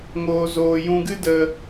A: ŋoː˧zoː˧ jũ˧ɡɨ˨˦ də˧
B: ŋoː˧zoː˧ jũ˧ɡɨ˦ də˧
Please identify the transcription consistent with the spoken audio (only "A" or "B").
B